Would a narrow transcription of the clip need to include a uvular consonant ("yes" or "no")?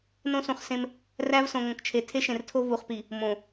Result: yes